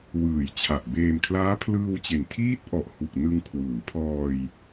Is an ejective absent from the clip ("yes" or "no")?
yes